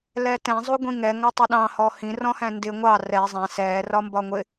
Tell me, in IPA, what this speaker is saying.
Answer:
lɛtɛ̃ zˤuɡʷĩŋɛ ŋɒtˤəɗɑ̃ hɔhĩ rɔ̃hæ̃ndɪ ŋʷɑ rɛ zˤæ̃ sɛː rɒmbɒŋʷɪ

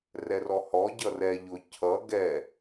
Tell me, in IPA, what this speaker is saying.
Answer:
rɛrɔhɔ ɟʌrɛ ʎʊ cʰʌ ɡɛ

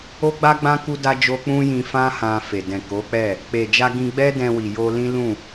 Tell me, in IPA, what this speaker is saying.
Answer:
o˦ɡ͡ba˦ɡ͡bã˦ ku˦da˦d͡ʒo˦ k͡pũ˦jĩ˧fã˦ hã˧fe˨ dɛ̃˨ko˨˦k͡pɛ˦˨ | k͡pe˨d͡ʒa˧ ɡĩ˧ɡ͡bɛ˦ dɛ̃˧wi˨ jo˧lĩ˦lũ˦˨

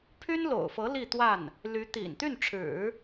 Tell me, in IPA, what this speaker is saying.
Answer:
pʰy˥nlo̰˨˩ʊ̯fɤ˧˥ li˥˧t̪wa˥˩n | ly˧˥t̪ḭ˨˩n t̪y˥˩nʈ͡ʂʰɻ̩˨˩˦

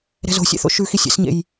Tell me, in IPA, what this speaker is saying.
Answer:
ɾɛ̤zo̤sʲɛ̰θo̰ ʃʉxisʲɛ̰sɲḛj

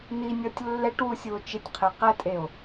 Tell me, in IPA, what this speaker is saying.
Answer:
n̪inʲɔtʲ lːɛʈwusʲuo̯ t͡ʃɪtʲqʰe qɛtʼeo̯

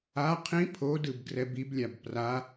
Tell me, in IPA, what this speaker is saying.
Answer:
a qʰĩ pʰodɯb ɡrɛbiblʲab pra

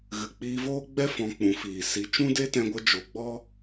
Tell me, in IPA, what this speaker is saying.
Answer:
ɣɨ˨k͡piː˧voː˦ɡ͡bɛ˦ fɔ̃˧k͡pũ˨˦fiː˨ si˧ t͡ʃũ˦de˦tɛ̃˧ɡʷə˧ d͡ʒo˨ɡ͡bɔ˦

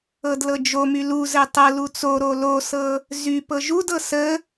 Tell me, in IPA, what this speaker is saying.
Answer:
ɤdlɤd͡ʒomy luzɘ tˤɤlu t͡soɾo losɤ | zy pɤʒudɤ sə

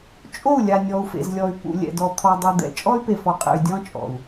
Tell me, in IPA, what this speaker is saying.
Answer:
t͡ʃʼo˦˨u̯lʲa˨ nʲɔ˨u̯fḛ˨zlʲɔ˨y̯ pṵ˨ lʲɛ̰˨dɔ˨ t̪ʰɔ˨dˤu˨d̪ɛ̰˨ t͡ʃʼɔ˦y̯pe˨fɔ˨qʼɛ̰˨y̯ dʲɔ̃˦t͡ʃʼɔ̰˨u̯

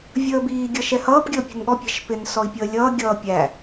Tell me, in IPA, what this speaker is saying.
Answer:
vʲəːbiː ɡʲʌʃɛhʌːp ɡʲəːpʲṳnɠɔ pʲɛ̤ʃpɪn sɔi̯pʲəːlʲʌː ɡʲʌːpʲæ

